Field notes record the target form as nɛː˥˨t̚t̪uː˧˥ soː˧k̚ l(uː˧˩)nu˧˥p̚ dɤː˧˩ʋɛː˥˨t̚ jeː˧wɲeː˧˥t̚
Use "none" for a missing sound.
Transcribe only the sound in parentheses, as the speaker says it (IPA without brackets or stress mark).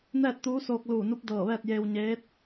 uː˧˩